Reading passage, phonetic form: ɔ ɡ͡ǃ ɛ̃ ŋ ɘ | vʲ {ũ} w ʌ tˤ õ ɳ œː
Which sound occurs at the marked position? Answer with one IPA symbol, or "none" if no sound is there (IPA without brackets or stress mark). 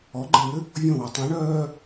õ